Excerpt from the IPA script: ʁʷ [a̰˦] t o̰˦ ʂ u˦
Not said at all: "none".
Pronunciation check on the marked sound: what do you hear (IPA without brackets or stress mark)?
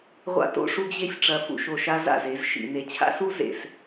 a̰˦